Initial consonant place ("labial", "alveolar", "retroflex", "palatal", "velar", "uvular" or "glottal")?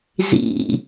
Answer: alveolar